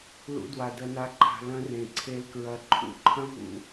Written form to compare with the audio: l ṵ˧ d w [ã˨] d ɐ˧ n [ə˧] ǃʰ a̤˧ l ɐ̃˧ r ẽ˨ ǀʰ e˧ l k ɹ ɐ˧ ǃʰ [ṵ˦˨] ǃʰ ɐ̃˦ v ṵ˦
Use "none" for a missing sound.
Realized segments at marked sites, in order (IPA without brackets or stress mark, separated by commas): a˨, a˧, ṵ˦˨